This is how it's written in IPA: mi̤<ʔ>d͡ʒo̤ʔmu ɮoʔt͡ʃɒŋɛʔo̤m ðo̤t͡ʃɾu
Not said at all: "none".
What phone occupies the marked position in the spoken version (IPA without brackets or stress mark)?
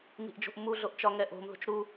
ʔ